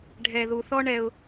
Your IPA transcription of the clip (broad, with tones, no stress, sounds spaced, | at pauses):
ɖʱ ɛ˨ ð u˨ θ ɔ˦ ɳ ɛ˦ ʊ̯